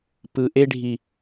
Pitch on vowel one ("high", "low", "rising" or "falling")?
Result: low